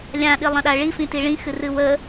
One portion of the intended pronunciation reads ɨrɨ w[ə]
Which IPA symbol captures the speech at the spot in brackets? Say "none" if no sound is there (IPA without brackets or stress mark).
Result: ə